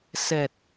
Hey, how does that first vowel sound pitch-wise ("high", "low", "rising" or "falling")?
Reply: low